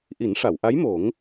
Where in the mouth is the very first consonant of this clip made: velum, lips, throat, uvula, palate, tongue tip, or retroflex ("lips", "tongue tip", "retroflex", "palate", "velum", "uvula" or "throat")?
throat